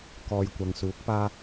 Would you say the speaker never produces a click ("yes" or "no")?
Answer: yes